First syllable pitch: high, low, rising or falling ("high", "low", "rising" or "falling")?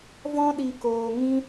high